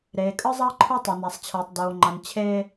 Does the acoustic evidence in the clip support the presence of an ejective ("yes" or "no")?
yes